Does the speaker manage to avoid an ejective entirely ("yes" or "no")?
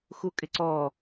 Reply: no